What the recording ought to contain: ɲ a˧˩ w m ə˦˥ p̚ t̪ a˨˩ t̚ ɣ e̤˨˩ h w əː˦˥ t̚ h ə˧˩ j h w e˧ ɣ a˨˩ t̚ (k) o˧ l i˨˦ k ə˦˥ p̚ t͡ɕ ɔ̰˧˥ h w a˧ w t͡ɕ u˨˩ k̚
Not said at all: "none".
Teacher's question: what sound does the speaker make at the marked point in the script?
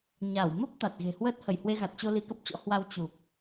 t͡ɕ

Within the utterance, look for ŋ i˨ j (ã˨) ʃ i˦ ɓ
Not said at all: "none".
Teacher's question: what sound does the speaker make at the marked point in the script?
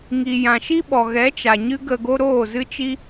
ã˨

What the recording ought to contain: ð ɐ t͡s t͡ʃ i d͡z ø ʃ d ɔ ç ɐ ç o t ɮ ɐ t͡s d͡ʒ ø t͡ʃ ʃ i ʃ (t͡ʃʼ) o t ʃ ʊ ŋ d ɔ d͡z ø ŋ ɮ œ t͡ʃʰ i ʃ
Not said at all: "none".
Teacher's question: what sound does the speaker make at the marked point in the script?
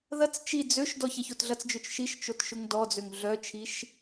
t͡ʃ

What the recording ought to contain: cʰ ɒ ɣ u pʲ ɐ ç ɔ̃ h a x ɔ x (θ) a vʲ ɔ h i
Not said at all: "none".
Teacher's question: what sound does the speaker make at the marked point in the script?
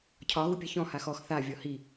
θ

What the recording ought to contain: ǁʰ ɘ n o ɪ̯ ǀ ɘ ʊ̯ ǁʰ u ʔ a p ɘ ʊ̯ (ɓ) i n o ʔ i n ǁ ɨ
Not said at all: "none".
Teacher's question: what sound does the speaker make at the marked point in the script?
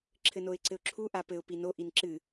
p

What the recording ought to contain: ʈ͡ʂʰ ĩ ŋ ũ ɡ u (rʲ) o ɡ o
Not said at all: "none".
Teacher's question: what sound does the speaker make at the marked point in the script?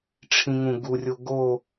rʲ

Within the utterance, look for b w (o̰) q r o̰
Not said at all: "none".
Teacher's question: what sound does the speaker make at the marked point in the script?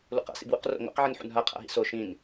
ṵ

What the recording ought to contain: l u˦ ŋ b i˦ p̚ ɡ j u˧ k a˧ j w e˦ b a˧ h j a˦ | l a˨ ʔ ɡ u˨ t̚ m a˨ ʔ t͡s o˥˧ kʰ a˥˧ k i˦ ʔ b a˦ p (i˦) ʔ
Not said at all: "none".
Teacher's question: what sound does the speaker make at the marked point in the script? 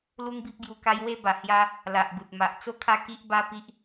i˦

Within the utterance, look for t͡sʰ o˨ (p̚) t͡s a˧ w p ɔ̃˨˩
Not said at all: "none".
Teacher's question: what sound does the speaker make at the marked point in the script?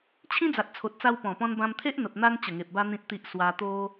t̚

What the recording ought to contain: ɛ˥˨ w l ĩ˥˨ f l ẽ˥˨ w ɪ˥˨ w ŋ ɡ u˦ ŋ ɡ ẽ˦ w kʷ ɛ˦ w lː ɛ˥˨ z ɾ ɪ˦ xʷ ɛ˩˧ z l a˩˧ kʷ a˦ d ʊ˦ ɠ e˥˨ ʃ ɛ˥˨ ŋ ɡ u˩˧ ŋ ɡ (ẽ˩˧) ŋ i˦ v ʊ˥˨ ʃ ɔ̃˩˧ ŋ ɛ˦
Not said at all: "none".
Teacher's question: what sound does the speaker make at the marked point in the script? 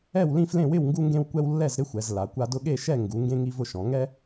ẽ˦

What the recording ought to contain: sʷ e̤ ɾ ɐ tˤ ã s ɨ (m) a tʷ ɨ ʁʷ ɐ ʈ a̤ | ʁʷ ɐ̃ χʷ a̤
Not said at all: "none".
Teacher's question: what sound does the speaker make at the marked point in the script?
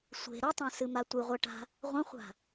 m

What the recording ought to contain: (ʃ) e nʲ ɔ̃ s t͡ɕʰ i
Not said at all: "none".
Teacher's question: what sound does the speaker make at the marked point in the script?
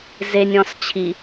z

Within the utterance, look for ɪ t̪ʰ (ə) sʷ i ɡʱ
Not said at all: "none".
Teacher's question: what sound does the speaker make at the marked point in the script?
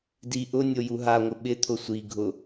ʊ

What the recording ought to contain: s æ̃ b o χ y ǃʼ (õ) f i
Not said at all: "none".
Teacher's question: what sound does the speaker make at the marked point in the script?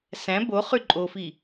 o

